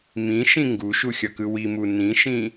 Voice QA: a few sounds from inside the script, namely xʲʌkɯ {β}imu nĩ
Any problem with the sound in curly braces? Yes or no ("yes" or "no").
yes